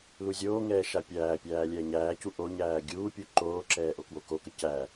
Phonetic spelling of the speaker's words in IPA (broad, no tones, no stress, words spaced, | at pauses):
luzʲoːŋɛː ʃapʲæːpʲæː lʲɛːɲæːcu ʔoɲæː ɡʲuː pʲuǃoːǁɛː ʔokwokokə cæ